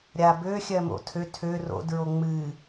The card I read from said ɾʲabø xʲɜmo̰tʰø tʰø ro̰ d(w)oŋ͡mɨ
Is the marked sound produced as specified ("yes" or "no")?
no